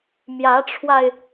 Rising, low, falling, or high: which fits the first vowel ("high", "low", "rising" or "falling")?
rising